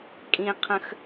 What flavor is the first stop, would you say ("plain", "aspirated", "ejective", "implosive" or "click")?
ejective